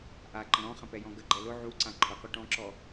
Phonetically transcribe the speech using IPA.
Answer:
ʔaǃə̃ ɾɔ̃χə̃pɛjɔ̃ ɡəɡ͡ǃɛ lʊ ʕuǀã ǃʰʊqu ʈɔ̃ǁɔ

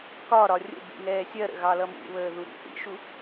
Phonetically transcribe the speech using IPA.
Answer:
kɒɾɒ rʲə̰bḭ ŋɛːsʲɜɾə̰ ɣɑlʌmṵβəː ðuɾḭθḭʃu

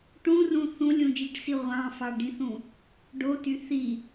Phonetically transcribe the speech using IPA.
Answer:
ʈũrũ θũlʲũd͡ʒiɖsi ʁʷɑ̃fɑɖĩθũ | ɖoty θi

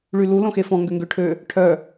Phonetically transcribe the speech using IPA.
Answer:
ɭylu lõxefɔ̃ ŋɡøŋɡøʈʰø | ʈʰœ

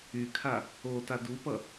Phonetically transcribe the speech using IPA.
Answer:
ykʰa | ota dupʌ

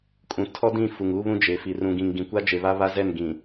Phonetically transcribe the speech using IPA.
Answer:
kʼũ˨ tʰɔ˦dĩ˦˨ fu˨ŋuː˦βũ˦ d͡ʒe˨fi˨r ũ˨ɡĩ˨ŋ ɡĩ˨kʷa˦d͡ʒe˨βa˦ βa˦zɛ˦˨n ɡĩ˨

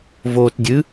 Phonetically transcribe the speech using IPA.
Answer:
voːtdʲɨ

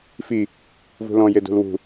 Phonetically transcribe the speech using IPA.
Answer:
fi | vṳlɔ̃ jedṳlwṳ

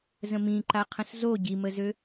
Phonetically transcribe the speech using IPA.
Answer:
zə̃mĩǃa qʰə̃szo ɟiməzø

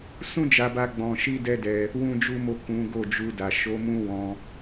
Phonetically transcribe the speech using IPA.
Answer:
sũ˦d͡ʒa˧ba˧ ɡ͡bɔ̃˧ʃi˦dɛ˦dɛ˧ | wũ˦d͡ʒu˦mo˦˨ kũ˨˦ ɡo˦˨d͡ʒu˧ da˨ ʃo˨˦ mũ˦wɔ̃˧

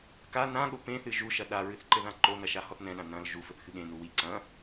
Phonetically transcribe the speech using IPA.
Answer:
ka nãɠo pẽθɨ ʒuʃɐ ɗaɹɨθǃɘðã ǃonɐʃahɔθ nɛ̃ɗã nɐ̃l ʒufɘθxɨ ɠẽnu wi ǀɐ̃

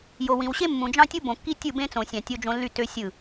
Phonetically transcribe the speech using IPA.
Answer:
jo˨wĩ˨wɕe˦ mːũ˨d͡ʒɑ̃˦tʲu˦ bõ˨kːi˦tʲɯ˦˨bẽ˦ t͡sõ˨sʲɑ̃˨ tʲo˦d͡ʒõ˦ lːy˦˨tø˦ sʲɯ˦˨

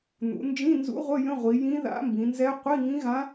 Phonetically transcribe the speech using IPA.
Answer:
n̪ṵ˩˧ nd͡ʒĩ˧˥˧nzṵ˧˥ʁʷə˧˥˧ jə̃˧˥˧ʁʷi˩˧ jĩ˧˥ða̰˧˥mbĩ˩˧nzɛ˧˥ qʷi˧˥˧ŋĩ˧˥ɣã˧˥

